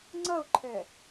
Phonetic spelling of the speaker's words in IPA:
ŋ͡ǀ ɐ ʊ̯ ǃʰ ɛ

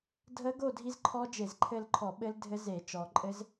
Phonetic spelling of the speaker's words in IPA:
dʱ ə˦˥ ɡ o˥˧ dʱ i˦˥ z ǃʰ ɔ˦˥ d͡ʒ e˧˩˧ z ǃʰ ɘ˥˧ l ǃʰ ɔ˧˩˧ ɓ ɘ˦˥ l dʱ ɘ˦˥ z e˧˩˧ t͡ʃ ɔ˩ ǃʼ ɘ˦˥ z

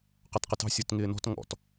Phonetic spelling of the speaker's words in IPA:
q ɑ t q ə t ɑ̤ sʲ ɔ t ŋ ɪː n ɔ̤ t ŋ ɔ̰ t

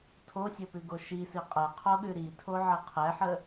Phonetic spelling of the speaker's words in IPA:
tʰ o sʲ o p ʉ ɡ o ʃ i s i qʼ ɛ qʰ o ɠ ʉ ɾ i tʰ o ʕ ə qʰ ɛ ħ ə

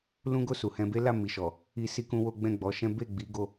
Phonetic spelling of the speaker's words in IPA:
l ũ˦ ɡ o˦˨ s u˨ h ɛ̃˧ b e˦ l a˦˨ m i˨ ʃ ɔ˨ | i˦ s i˦ k ũ˦ w o˦ ɡ͡b ɛ̃˦˨ ɡ͡b ɔ˨˦ ʃ ɛ̃˦ b e˦˨ ɡ͡b i˨˦ ɡ o˧

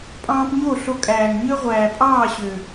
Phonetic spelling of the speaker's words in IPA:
pʼ ɑ̃ː˧ p ɲ o˦˨ ɬ o˧ kʼ æː˨ ŋ ɲ ø˦ ʁʷ æː˨ pʼ ɑː˦˨ ɕ ø˨

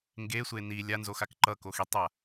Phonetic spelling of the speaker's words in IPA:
ŋ ɡ e sʷ e n i lʲ a n z o x a k ǃ ʌ k o x i tˤ a

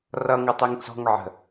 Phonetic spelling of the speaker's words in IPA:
r ʌ ŋ ʌ tˤ e ŋ t͡s ɔ̤ ŋ ʕ ə̤

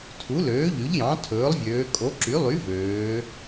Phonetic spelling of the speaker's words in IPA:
tʰ u˩˥ l øː˩˥ ʎ y˩˥ ʎ j ɑ̃˩˥ tʰ ɵː˩˥ lˠ vʲ øː˩˧ kʼ o˩˥ ǁ y˩˥ lˠ y˩˥ v øː˩˧

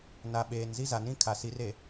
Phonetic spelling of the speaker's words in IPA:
n a˨ ɓ eː˨ n z i˦ z a˨ n ĩ˦ kʰ a˨ s i˨˦ r e˨

